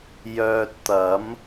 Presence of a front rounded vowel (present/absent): present